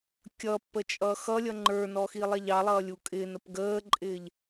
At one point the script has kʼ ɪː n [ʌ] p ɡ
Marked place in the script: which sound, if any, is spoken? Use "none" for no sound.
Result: ə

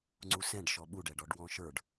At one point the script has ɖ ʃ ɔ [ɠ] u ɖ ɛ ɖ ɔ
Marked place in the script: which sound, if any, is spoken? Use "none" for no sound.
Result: ɓ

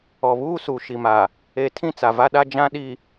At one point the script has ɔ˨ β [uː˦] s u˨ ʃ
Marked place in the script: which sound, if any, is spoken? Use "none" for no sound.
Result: uː˦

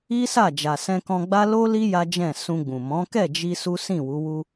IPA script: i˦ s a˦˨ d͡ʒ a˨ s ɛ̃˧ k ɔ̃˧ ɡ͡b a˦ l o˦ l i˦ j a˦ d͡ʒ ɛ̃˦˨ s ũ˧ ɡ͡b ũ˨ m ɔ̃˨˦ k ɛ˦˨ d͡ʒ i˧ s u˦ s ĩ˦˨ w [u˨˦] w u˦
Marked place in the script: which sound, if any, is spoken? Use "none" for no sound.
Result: u˨˦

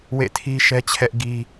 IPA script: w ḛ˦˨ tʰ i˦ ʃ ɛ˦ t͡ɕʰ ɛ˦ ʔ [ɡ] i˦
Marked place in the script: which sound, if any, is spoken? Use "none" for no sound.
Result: ɡ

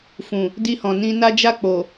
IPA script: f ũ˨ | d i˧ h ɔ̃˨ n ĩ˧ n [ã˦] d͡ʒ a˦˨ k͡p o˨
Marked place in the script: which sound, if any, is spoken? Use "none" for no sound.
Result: a˦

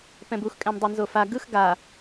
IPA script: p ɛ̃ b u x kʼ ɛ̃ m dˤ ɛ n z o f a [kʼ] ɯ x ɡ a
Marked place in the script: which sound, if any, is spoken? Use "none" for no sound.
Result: ɡ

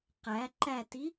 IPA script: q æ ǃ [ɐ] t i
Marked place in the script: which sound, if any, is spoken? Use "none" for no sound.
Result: æ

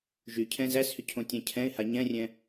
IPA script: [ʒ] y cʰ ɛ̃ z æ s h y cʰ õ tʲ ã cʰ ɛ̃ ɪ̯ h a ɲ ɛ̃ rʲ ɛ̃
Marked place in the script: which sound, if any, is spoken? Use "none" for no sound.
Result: ʒ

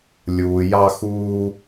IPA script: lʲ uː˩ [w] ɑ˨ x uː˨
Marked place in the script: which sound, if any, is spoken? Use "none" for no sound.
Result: j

